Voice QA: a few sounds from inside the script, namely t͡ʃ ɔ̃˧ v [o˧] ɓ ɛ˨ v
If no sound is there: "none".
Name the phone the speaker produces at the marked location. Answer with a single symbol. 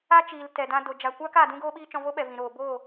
o˦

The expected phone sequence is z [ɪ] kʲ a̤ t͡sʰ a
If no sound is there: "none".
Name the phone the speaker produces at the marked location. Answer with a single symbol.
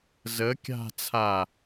ə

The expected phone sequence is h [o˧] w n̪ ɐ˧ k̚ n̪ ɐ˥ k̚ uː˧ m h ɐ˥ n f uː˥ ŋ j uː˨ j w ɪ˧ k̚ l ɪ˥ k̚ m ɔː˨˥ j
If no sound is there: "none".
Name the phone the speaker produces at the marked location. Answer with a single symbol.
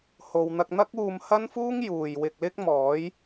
o˨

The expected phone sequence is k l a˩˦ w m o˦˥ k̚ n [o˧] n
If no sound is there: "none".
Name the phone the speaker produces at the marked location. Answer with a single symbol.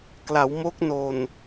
o˨˩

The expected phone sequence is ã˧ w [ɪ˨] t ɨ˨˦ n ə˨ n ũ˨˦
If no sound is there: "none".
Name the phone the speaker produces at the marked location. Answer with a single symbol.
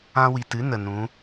i˨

